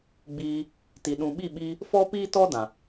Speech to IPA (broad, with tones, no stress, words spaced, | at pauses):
ɡ͡biː˧ | ti˨ɗũ˨ɓi˦˨ɓiː˧ | fɔ˦ piː˦ tɔ˦dã˨